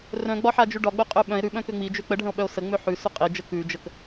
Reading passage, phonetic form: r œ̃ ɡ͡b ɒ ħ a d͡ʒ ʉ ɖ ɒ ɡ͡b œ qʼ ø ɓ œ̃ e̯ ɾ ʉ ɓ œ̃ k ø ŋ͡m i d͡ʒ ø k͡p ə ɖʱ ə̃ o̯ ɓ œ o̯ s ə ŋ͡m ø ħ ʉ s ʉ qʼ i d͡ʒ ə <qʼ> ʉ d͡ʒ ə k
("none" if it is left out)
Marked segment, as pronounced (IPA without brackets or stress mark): k